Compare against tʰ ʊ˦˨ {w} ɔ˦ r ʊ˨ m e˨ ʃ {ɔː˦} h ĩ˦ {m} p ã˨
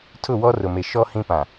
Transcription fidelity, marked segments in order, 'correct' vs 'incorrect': correct, incorrect, incorrect

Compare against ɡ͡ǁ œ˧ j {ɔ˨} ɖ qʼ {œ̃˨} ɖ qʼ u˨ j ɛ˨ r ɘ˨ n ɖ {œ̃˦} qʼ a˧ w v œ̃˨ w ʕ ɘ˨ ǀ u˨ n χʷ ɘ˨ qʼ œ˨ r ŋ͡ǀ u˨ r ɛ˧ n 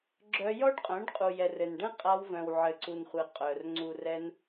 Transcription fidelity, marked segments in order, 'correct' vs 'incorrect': incorrect, incorrect, incorrect

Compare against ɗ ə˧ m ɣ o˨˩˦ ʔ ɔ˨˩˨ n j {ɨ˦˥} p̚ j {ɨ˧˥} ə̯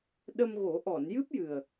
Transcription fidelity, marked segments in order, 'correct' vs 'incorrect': correct, incorrect

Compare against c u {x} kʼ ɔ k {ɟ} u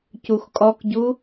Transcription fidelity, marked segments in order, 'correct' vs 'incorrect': correct, correct

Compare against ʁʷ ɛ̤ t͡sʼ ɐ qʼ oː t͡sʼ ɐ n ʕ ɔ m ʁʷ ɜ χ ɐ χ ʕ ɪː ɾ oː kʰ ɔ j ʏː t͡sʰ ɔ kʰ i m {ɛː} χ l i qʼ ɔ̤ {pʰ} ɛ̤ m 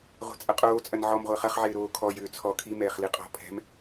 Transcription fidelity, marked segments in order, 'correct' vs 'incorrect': correct, correct

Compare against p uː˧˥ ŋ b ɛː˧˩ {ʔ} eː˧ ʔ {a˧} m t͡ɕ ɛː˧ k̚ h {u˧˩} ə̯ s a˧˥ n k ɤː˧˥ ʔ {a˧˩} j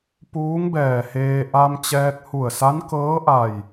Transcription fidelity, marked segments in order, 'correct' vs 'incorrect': incorrect, correct, correct, correct

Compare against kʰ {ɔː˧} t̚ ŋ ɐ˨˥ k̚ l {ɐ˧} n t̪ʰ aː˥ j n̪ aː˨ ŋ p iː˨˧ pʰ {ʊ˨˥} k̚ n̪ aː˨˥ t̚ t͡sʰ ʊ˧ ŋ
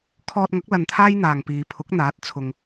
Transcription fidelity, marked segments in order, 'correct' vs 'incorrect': correct, correct, correct

